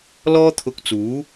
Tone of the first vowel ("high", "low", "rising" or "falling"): high